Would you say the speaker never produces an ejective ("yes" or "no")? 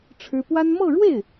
yes